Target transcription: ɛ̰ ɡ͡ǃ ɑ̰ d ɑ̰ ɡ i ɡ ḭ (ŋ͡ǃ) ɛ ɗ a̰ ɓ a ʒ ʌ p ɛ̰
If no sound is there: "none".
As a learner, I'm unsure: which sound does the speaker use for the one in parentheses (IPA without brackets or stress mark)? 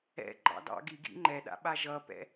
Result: ŋ͡ǃ